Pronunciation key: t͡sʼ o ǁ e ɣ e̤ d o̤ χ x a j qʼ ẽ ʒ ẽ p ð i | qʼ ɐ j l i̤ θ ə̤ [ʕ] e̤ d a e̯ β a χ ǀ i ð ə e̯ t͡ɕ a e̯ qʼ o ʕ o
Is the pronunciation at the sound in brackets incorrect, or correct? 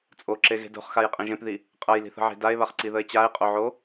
correct